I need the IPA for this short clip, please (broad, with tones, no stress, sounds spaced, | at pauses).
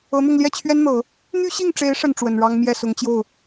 ɤ˧˥ n̪ ʊ˥˧ ŋ l j ɛ˥˩ t͡ɕʰ ɥ ɛ˥ n n̪ ɤ˨˩˦ | n̪ y˥ ɕ i˥˩ ŋ ʈ͡ʂ e˧˥ ɪ̯ ʂ ə˥˩ n ʈ͡ʂ w ə˨˩ n ɻ ɑ˥ ŋ m j ɛ˥˩ s ʊ˧˥ ŋ t͡ɕ j o˥˩ ʊ̯